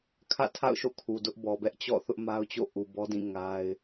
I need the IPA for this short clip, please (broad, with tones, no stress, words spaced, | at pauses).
kʰä̰˦˨tʰa̰˦˨ʊ̯ʃo̰˦˨ kʰu˨dʊ˦ʔbɔ˨ bɛ˦ʔt͡ɕɔ̰˦˨ θʊ˦ʔma˦ʊ̯t͡ɕo̰˦˨ ʔu˨bɔ˦dĩ˦˨ ŋa˦ɪ̯